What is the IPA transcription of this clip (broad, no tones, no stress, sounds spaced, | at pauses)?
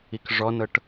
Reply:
i k ʐ ɔ n ɤ ʈ